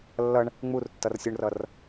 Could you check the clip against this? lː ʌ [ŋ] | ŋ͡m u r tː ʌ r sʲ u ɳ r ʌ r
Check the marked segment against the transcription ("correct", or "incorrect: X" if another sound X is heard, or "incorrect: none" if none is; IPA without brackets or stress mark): incorrect: ɳ